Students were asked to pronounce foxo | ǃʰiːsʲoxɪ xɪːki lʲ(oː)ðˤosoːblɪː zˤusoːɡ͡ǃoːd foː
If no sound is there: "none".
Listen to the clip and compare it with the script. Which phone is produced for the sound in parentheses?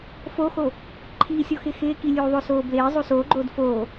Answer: uː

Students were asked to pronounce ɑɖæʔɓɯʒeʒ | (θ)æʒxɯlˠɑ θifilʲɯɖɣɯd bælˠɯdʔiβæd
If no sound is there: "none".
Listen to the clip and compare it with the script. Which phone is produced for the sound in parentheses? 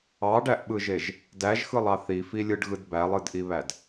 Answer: d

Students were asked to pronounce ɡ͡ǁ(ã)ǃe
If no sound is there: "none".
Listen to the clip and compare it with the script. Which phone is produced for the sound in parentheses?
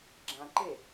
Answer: ã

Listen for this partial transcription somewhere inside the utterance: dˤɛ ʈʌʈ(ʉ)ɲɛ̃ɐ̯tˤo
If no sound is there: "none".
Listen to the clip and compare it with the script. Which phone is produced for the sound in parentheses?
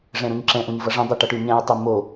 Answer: ʉ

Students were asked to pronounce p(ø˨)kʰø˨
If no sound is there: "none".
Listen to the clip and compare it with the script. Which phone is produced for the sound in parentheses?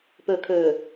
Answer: ø˨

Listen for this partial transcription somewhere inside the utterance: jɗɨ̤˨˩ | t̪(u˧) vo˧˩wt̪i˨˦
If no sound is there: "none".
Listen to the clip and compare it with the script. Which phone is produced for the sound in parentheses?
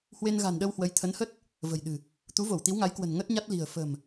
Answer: u˨˦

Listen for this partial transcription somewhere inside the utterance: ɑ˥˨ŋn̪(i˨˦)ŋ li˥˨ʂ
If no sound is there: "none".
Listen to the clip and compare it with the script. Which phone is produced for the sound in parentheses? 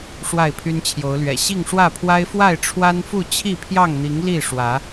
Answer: i˨˦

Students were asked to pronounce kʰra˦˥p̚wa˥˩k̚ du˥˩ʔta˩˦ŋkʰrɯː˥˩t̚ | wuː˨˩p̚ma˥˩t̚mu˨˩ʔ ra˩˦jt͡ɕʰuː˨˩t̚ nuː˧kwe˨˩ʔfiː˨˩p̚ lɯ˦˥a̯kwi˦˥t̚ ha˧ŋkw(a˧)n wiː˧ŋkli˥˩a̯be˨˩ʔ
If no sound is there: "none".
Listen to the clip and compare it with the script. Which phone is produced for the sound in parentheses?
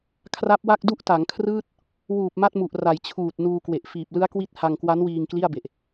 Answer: a˦˥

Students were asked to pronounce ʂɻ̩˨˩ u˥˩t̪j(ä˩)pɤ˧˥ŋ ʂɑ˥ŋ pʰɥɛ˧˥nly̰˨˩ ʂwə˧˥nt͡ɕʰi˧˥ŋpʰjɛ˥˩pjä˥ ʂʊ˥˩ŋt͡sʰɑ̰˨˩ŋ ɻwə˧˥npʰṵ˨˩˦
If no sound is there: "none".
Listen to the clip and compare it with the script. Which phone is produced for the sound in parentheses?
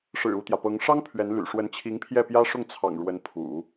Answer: ä˩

